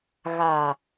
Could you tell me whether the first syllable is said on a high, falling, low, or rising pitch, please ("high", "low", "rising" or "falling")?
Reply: low